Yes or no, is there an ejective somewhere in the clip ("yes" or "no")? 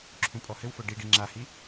yes